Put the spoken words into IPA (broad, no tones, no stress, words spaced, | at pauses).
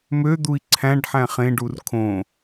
mød̪ui̯ ǀʰæ̃ɖ ħæ̃χẽɖur kʰõ